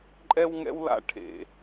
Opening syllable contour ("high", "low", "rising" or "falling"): high